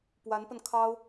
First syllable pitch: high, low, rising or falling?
rising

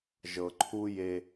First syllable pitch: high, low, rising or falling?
low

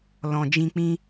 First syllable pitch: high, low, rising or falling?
low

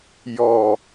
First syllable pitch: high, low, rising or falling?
low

